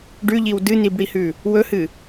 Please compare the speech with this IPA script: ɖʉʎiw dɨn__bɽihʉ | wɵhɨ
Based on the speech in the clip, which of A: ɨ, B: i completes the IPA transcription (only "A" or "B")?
B